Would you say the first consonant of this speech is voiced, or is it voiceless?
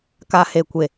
voiceless